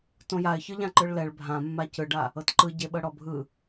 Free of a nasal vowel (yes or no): no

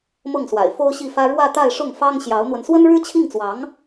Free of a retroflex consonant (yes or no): no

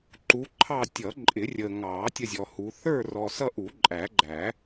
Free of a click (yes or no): no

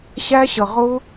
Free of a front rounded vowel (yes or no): yes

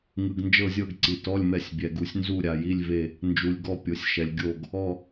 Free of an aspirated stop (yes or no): yes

